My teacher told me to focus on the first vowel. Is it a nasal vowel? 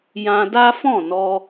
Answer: yes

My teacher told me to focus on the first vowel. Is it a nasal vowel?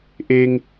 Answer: no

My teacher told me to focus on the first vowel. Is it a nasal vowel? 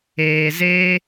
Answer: no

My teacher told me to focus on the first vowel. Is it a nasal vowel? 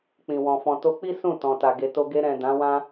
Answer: yes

